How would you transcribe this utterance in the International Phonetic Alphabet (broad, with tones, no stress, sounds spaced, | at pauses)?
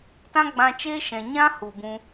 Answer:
t ã˦ ɡ͡b ã˧ t͡ʃ eː˦ ʃ ɛ̃˨ ɲ ã˦ h u˨ b ũ˧